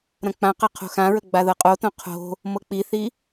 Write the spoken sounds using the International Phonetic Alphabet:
ɾ ɐ̃ k͡p ã q ɐ qʰ o̤ x ã ɹ ə ɡ͡b a ð ɤ qʼ o t õ qʰ o̤ | m ɤ k͡p i θ i

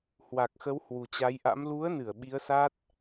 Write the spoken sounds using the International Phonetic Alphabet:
h w a˨˩ k̚ x ə˨˦ w h w u˨˩ t͡ɕ a˨˦ j ʔ a̰˧˥ m l u˨˦ ə̯ n ɨ˧˩ ə̯ ɓ i˨˦ ə̯ s a˦˥ t̚

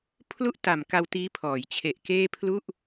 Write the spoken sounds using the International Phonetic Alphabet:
pʰ l u˥˩ ʔ t a˨˩ m k a˧ w t iː˦˥ pʰ ɔː˩˦ j t͡ɕʰ e˨˩ ʔ k eː˥˩ pʰ l u˥˩ ʔ

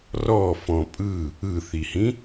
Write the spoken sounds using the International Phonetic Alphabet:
r ɔ f ɔ̃ pʼ ɯ | ɯ θ i h ĩ

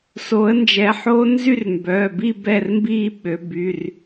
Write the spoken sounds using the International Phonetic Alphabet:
s o˨˦ ə̯ n d͡ʒ ɛ˨˦ ħ oː˦˥ n z y˥˧ r m b œː˩˧˩ b i˥˧ b ɛ˥˧ r m b iː˥˧ ɓ ø˨˦ b y˩˧˩ r

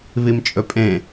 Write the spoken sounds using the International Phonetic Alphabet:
β i m t͡ʃʼ ɵ pʼ ẽ

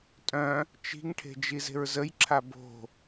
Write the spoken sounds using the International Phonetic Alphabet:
tʼ œ̃ | t͡ʃ i̤ ŋ ʈʰ e̤ d͡ʒ i z e̤ ɹ z ə j ǁʰ a b o̤

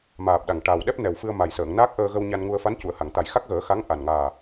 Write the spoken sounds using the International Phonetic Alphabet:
m aː˨˩ p̚ ɗ a˨˩ ŋ ʈ aː˨˩ w ɗ ɛ˦˥ p̚ n ɛ˨˩ w f ɨ˧ ə̯ m a˨˩ j s əː˨˩˨ ŋ n aː˦˥ k̚ ʔ əː˧ ɣ ə˧ w ɲ a˧ n ŋ u˧ ə̯ f a˧˥ n c u˨˩˨ ə̯ h a˨˩˨ ŋ t̪ a˨˩ j x a˦˥ k̚ ɣ əː˨˩˦ x a˧˥ ŋ ʔ a˨˩ n ŋ aː˨˩

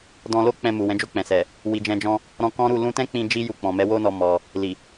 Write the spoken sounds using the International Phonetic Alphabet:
d ɔ̃˧ l o˦ k͡p ɛ̃˧ m u˨ w ɛ̃˨˦ d͡ʒ o˦˨ k͡p ɛ̃˨ s ɛ˨ | w i˨ d͡ʒ ɛ̃˧ d͡ʒ ɔ̃˦ | ɾ ɔ̃˧ k ɔ̃˦ ɾ u˦˨ l ũ˧ t ɛ̃˦ k͡p ĩ˧ d͡ʒ i˦ j u˧ k͡p ɔ̃˨ m ɛ˨˦ w o˦ n ɔ˧ m ɔ˧ | l i˨

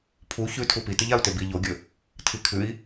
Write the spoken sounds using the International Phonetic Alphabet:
pʰ u ç ʉ tʰ u p i t ɨ ʎ a u̯ t e b i ʎ o ɡʲ ɵ | tʰ i kʰ ʉ i̯

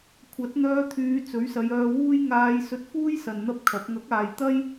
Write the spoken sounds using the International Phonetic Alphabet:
kʷʰ ɐ˨˥ t̚ n̪ œː˧ t̪ʰ yː˨˧ t͡s ɵ˨˥ ɥ s ɐ˨˧ j œː˧ w uː˥ j ŋ aː˧ j s ɵ˧ t̚ f uː˥ j s ɐ˨ n n̪ ɐ˥ p̚ kʰ ɐ˨˥ p̚ ŋ ɐ˨˥ k̚ aː˨ j t̪ ɐ˥ j

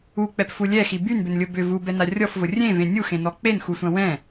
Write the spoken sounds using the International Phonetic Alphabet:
u k͡p ɛ p f u lʲ ɛ x i b y n b ʏ n lʲ ʊ b ʏ v u b ɛ n a rʲ ɔ f v ʊ rʲ ẽ v ẽ nʲ u x ẽ n ɔ k͡p e n x u sʷ ɐ̃ w ɛ̃

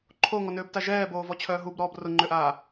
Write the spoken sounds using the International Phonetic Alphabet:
ǃʰ o ŋ ɔ n øː b t a ʒ ɛː b oː v ɔ t͡ɕʰ œː ɦ u b ɾ ɔː b r ʊ ŋ͡ǃ ʏ ʔ aː

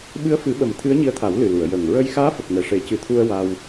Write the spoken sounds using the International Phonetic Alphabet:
ɓ ɨ˧˥ ə̯ f ɨ˨˩˦ ɓ ə˨˩ m t̪ʰ ɨ˧˥ ə̯ ɲ i˧˥ ə̯ t̪ʰ a˨˩˦ w l ɨ˨˩ l u˨˩˨ ə̯ j ə˨˩ ŋ ɹ ə˧ j x aː˧˥ f ə˨˩ k̚ n ɛ˨˩ ʂ e˨˩˦ c ɨ˨˩˦ t̪ʰ u˧ ə̯ w a˧ w

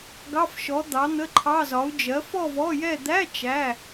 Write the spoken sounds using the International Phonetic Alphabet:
ɡ ɑ˧˥˧ f ʃ ɔ˨˥ d̪ ɑ˨˥ n̪ ə˧˥˧ ǃʰ ɑ˧˥˧ z ɒ˨˥ u̯ d͡ʒ ɜ˨˥ f ɔ˥˧ v ɔ˧˥˧ j ɛ˥˧ d̪ æ˧˥˧ t͡ʃ æ˧˥˧

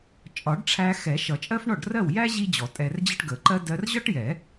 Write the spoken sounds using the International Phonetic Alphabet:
t͡ʃʼ ɒ˨˩˦ ɖ ʈ͡ʂʰ æ˧ x ɛ˨˩˦ ʃ ʌ˨˩˦ t͡ʃʼ ɜ˥ f ɳ ɔ˥˩ ɖ r ɜ˥˩ w j æ˥ ʑ i˥ d͡ʑ ɔ˨˩˦ tʼ ɛ˧ r d͡ʑ ə˥ ʈ ɡ ə˨˩˦ ǃ ɜ˥ d ɜ˧ r ʑ ɒ˥ ʈ j ɛ˨˩˦

